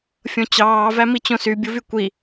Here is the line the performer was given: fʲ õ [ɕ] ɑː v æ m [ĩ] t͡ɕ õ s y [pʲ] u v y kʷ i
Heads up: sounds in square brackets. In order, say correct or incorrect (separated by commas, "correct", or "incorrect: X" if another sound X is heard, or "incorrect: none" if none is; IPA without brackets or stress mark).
incorrect: t͡ɕ, incorrect: i, incorrect: bʲ